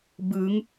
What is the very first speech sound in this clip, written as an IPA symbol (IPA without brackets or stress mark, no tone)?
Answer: b